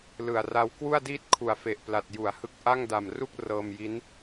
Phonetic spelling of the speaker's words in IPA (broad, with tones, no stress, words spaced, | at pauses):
lɯ˨˩a̯ ra˦˥wkwu˥˩a̯diː˥˩t̚ kʰu˨˩a̯fe˨˩ʔpla˨˩t̚ ju˩˦a̯hɯ˦˥k̚ ʔa˥˩ŋda˨˩mru˥˩k̚ rɤː˧mji˦˥n